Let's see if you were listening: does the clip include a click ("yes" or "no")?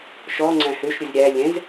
yes